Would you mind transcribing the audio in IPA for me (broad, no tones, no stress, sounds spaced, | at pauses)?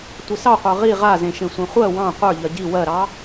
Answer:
tʷ ɘ s ɑ qʷ ə˞ ʁ i ʁ a z ẽ ʃ ẽ sʷ ẽ χʷ ɜ w ɑ̃ qʷ ə˞ ʎ ɜ ɟ i w ɜ ɾ ɑ